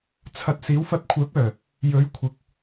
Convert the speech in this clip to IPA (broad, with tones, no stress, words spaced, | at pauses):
t͡sʰɐ˧t̚ siː˨˥wfɐ˧t̚ kʷʰœː˨˥p̚œː˨˩ | jɵ˨˥ɥ kʷʰɪ˨k̚